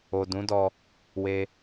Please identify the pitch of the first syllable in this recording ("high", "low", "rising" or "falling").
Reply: low